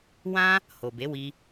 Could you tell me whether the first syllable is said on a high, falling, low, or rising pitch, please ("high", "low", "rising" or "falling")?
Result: high